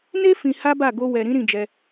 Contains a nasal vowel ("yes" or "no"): yes